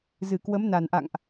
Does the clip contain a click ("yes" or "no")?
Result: no